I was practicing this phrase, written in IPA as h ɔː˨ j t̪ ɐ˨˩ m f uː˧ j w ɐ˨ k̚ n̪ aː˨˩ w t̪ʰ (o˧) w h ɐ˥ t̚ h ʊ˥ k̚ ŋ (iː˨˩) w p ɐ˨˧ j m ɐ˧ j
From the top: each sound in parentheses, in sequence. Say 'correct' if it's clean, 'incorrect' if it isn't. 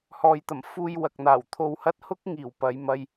correct, correct

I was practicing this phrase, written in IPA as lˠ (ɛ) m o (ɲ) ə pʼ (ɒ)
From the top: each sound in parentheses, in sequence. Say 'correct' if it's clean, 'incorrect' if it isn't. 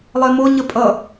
correct, correct, incorrect: ʌ

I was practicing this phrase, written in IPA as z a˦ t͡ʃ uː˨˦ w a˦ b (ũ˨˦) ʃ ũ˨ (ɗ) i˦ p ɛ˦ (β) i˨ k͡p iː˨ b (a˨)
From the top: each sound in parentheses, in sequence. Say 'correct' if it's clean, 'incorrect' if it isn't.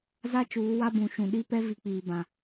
correct, correct, incorrect: v, incorrect: ã˨

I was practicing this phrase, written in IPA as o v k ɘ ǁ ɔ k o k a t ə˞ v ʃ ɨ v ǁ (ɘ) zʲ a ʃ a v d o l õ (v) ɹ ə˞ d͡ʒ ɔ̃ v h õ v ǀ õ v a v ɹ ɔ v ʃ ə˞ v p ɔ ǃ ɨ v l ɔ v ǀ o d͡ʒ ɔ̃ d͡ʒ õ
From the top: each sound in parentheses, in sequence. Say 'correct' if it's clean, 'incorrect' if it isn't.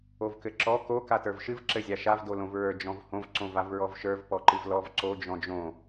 correct, correct

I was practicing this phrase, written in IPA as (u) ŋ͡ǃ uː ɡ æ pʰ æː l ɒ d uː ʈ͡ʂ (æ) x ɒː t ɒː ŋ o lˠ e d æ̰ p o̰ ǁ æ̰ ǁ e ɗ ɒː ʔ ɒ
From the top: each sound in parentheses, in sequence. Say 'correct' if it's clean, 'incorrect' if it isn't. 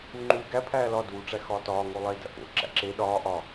correct, correct

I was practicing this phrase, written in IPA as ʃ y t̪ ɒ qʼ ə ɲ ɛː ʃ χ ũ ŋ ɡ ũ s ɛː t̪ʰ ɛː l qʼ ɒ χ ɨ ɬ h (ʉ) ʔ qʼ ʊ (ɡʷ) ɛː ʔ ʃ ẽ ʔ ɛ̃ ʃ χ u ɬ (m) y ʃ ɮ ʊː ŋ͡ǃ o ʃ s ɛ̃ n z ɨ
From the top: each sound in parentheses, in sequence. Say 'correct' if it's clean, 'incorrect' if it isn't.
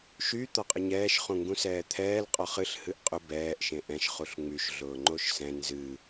incorrect: ɨ, incorrect: b, incorrect: ŋ͡m

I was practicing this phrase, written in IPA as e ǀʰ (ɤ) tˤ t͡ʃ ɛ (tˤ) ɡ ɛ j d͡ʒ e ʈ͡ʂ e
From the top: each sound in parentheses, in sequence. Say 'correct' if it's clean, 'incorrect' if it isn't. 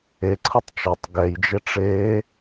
correct, correct

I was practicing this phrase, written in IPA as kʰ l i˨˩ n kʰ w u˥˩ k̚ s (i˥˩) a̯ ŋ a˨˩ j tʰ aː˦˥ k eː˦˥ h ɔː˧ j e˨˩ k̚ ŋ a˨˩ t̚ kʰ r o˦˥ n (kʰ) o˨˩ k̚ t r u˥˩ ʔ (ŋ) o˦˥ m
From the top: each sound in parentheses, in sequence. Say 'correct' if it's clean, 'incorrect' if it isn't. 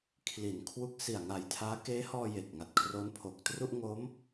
incorrect: i˨˩, incorrect: pʰ, correct

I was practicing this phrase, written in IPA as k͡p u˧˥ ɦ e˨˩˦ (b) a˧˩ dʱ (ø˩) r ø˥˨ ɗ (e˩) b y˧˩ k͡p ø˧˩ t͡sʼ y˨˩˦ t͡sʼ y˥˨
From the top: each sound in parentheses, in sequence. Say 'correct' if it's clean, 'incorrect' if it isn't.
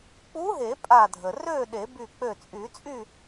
incorrect: pʼ, incorrect: ə˩, incorrect: e˨˩˦

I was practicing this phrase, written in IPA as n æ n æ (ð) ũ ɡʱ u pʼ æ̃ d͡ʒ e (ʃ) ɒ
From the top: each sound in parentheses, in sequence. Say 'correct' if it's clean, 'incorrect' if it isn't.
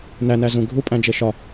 incorrect: z, correct

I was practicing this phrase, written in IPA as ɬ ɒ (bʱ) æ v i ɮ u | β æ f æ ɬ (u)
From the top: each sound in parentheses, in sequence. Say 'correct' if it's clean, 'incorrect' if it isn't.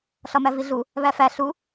incorrect: m, correct

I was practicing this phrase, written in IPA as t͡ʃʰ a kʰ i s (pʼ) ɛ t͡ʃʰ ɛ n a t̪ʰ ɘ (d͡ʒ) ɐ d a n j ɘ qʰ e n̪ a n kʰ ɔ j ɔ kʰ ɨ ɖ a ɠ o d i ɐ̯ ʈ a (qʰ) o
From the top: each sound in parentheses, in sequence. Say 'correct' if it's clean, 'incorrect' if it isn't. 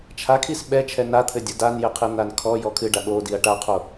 incorrect: ɓ, incorrect: dʲ, correct

